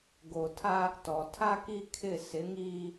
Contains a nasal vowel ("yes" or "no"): no